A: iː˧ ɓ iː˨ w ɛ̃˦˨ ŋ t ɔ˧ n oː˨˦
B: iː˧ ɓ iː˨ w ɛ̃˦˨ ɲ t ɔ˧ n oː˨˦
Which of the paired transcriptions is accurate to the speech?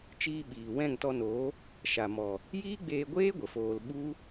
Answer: A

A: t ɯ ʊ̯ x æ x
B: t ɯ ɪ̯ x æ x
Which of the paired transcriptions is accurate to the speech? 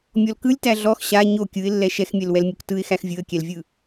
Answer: B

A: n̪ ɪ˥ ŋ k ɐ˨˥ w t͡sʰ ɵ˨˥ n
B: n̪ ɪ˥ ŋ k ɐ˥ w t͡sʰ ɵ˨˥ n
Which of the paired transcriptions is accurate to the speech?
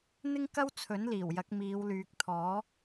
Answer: B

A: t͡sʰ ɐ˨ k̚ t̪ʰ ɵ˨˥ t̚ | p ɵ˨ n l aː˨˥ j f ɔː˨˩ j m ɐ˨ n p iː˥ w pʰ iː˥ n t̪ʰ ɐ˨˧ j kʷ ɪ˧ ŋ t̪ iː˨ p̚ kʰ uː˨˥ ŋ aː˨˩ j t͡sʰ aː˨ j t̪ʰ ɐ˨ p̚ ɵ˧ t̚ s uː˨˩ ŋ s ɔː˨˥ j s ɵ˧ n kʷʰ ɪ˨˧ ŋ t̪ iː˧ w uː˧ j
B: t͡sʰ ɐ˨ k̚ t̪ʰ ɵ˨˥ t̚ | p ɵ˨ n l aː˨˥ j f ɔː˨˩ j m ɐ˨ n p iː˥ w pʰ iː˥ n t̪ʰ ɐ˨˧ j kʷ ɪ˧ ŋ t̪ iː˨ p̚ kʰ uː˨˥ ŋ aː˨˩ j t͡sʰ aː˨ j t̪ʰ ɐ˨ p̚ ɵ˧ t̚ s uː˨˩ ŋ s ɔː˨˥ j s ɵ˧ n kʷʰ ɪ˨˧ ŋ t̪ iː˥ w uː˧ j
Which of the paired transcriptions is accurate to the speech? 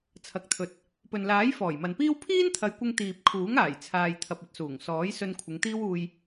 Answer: B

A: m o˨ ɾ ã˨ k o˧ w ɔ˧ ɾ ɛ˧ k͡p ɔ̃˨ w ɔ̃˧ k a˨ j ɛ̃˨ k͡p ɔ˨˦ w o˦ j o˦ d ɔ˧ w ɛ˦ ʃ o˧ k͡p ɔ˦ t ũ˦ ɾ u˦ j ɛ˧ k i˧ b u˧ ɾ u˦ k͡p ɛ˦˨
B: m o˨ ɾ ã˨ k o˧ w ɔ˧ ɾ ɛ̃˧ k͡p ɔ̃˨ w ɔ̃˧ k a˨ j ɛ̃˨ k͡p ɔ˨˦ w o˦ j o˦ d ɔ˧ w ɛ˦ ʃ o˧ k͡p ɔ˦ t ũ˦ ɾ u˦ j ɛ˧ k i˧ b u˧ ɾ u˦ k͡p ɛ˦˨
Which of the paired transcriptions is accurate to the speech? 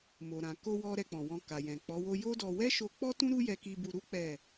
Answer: A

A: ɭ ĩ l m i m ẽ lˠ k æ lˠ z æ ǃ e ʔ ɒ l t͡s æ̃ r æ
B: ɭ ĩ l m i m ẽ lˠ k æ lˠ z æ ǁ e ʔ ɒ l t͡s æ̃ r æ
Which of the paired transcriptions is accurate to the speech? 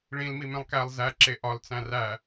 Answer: B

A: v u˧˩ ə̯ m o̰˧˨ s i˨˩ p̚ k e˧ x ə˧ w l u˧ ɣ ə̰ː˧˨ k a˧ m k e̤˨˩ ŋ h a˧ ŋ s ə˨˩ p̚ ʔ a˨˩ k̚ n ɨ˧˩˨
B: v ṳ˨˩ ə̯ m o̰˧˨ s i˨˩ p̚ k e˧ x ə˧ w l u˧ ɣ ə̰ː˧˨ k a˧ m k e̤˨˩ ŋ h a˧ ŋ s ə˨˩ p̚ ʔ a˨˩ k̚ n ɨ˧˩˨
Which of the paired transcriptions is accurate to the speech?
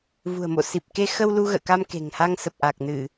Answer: B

